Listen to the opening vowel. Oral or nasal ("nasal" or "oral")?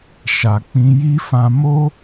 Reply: oral